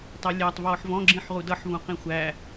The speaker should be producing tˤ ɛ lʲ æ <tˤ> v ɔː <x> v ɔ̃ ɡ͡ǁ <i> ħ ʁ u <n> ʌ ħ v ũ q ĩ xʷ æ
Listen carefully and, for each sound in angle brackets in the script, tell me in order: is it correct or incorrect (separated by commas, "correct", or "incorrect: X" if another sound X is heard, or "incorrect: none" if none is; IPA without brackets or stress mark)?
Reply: correct, incorrect: ħ, incorrect: ĩ, incorrect: d